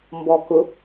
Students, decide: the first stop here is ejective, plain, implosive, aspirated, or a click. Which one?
plain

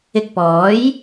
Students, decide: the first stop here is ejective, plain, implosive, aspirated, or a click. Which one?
plain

